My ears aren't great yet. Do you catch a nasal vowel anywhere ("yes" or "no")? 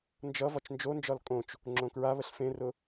yes